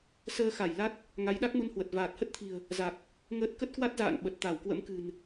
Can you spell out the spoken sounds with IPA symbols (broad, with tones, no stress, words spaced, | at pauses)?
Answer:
səː˧xa˧˩j la˦˥t̚ | ŋa˨˦jɗa˦˥k̚mu˧nhwə˨˩t̚ vaː˨˩t̚hə˦˥t̚t̪ʰi̤˨˩ə̯ | za˨˩k̚ | ŋəː˦˥t̚ kə˦˥t̚kwa˦˥t̚za̰ː˧˨n ɓə˨˩t̚t̪a˧˩wkwə̰˧˥mkɨ̤˨˩n